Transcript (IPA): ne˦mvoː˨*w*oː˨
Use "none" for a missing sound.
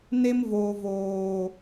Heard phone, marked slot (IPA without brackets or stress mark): v